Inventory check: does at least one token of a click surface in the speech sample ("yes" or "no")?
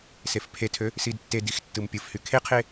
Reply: no